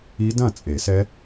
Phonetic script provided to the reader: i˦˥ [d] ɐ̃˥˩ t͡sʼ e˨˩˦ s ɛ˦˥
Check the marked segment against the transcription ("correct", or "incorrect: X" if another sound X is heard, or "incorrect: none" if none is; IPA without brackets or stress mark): correct